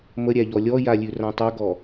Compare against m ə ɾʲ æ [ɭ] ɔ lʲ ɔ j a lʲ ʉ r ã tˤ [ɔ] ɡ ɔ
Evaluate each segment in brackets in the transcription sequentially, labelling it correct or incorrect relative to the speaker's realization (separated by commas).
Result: incorrect, incorrect